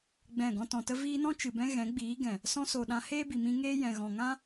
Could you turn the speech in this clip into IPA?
ɡ͡bɛ̃˦˨ɡɔ̃˦ tɔ̃˨tə˧ viː˧nɔ̃˦t͡ʃɨ˨bɛ̃˧ ɣɛ̃˨˦ɡ͡biː˨˦ɡɛ̃˨ | sɔ̃˧so˨ ɗã˧heː˦bi˨mĩ˧ ŋeː˧jɛ̃˨ɣɔ̃˨ ŋã˦

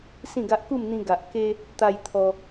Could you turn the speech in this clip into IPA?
sĩ˥˧ɡa˦ʔ ku˥˧mn̪ĩ˧ ɡa˨ʔ ke˦ | t̪a˧j t̪ʰɔ˧

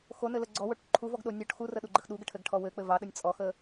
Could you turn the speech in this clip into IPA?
xonɘlə ɡ͡ǀɔwoʈ ǃʰuvɔɡɗo nʲɔʈ xurəɗuɡ͡ǃəx ɗuɡəʈʰɘɡʈʰɔ wɘk͡pɘ vɑɗənʲ t͡sʼɔxə

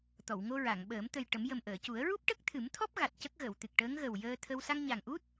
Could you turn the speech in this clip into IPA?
t̪ɔ˨˩˨wŋo˧ɹa˨˩˨ŋɓəː˨˩˦m t̪ə˨˩jʈə˨˩˦m jə˨˩mʔəː˨˩˨cu˨˩˦ə̯ ɹu˦˥p̚ʈə˦˥k̚t̪ʰɨ˨˩˦mt̪ʰɔ˦˥p̚ ɣa˨˩t̚cə˦˥k̚ɣə˨˩˨w t̪ɨ˨˩k̚ʈəː˧˥ŋɣə˨˩w jəː˧t̪ʰə˧w sa˧ŋɲa˨˩ŋʔu˦˥t̚

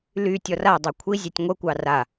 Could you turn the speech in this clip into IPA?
ly tʲɔradˤɑ kʷʰizʲɛtʲ ŋʷəkʷɑ ra

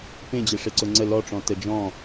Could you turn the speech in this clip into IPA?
pẽd͡ʑe ʂeǀʊŋ͡ǀə lɔʈ͡ʂɔ̃ təd͡ʒɔ̃

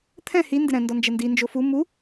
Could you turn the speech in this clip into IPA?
t̪ʰɛ̃ hi ndɪɾɛ̃ ndɔnd͡ʒɛndi nd͡ʒofu mu

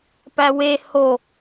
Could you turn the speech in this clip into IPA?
pæwe ho

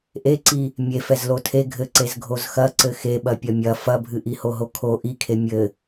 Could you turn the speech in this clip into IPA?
ʔeǀi | mʲefɛz lotʰe ɡʱɘǀez ɡʱozxɐ ǀɘxeɓɐ pʲɐmʲɐ fɐbʱɨ ʔihoɦokʰo ʔikʰe mʲɘ

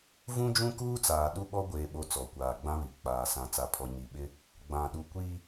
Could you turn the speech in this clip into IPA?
vũ˦d͡ʒũ˦kuː˦t͡saː˨ ɗu˦ɓɔ˦ɡʷeː˨ ɓo˦t͡sɔ˨ kʷaː˨ɡ͡bã˦βi˨ k͡paː˨ sã˨t͡sa˨pʰɔ˨ ɲi˨ɓɪ˦ | ɡ͡bã˨ɗu˨ kʷi˦

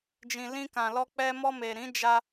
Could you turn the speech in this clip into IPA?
d͡ʒĩ˨lĩ˧kã˨lɔ˧ k͡pɛ˧ mɔ˧me˨ ɾĩ˨˦d͡ʒa˧

